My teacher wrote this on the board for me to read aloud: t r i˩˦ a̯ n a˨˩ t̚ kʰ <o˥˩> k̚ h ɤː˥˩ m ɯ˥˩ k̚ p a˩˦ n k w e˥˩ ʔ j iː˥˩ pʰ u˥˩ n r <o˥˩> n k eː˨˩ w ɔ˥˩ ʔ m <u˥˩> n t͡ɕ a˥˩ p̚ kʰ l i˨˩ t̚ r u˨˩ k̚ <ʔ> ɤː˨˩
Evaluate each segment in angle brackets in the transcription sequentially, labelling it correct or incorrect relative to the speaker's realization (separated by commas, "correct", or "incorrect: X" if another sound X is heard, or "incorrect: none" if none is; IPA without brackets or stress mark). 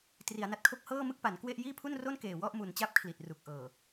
correct, correct, incorrect: u˨˩, correct